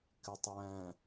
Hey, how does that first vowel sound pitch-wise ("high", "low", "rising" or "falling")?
low